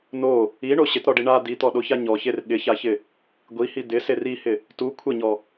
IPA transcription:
n o | i ɳ o ɕ ɪ t ɾ ɔ ɖ i ɳ a d̪ i t̪ ɔ ɗ o ç a ɲ ɔ ç e r ɠ ɪ ç a ç ɪ | ɡʷ i h i d̪ ɪ s e r i h ɪ | t u kʷʰ ɪ ɲ ɔ

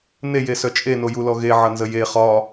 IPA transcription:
n e j e s œ t͡ʃʼ e n o j u l ɔ ɣ e ʕ ʌ n z ə j e χ ɒ

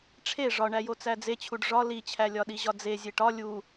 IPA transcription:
ʈ͡ʂʰ e ʐ ɒ ɳ æ j o t͡s æ d͡z e t͡ɕʰ u ɖ ʐ ɒ l i t͡ɕʰ æ lʲ ɒ ɗ i ʑ ɒ d͡z e zʲ e ʈ ɒ lʲ u

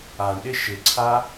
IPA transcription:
a ɳ ɗ ɪ ʃ ɪ ǀʰ a

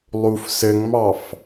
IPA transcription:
lˠ u f s ɘ ŋ m ɑ f

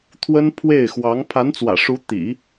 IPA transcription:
t̪ʰ w ə˥ n pʰ w e˥˩ ɪ̯ x w ɑ˧˥ ŋ pʰ a˧˥ n t͡s w ä̰˨˩ ʂ u˧˥ t̪ ḭ˨˩˦

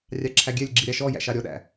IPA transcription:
rʲ ɑ ǁʰ æ ɡʲ ɛ lʲ ɡ͡ǁ i ɾʲ ɑ ʃ ɔ j æ̰ ʃ ɑ ɾʲ ɔ ɗ æ̰

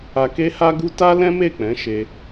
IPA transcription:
a˧ k e˦ h a˦ ɡ u˦ t a˦ l ɛ̃˦ m e˦˨ k͡p ɛ̃˨˦ ʃ e˧

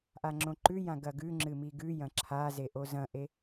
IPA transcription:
ʔ a ŋ͡ǁ õ ǃ ʉ j ã ɡ ɐ ɡ ʉ ŋ͡ǁ ɨ m i ɡ ʉ j ɐ̃ ǁʰ a z e ʔ o z ɐ̃ ʔ e

